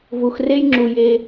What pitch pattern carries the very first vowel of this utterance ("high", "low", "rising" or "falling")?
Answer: low